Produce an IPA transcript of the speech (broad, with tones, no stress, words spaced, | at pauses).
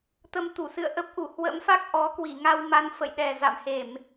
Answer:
t̪ə˧mt̪u˧˩sɨ̰˧˨ə̯ ʔə˦˥p̚ ʔu˧˩hwə̰˧˥mfa˦˥k̚ ʔɔ˨˦ kwi˧˩ŋa˧wma˨˦n fə̰˧˨jɗɛ˨˩za̰˧˨mhe˧˩˨m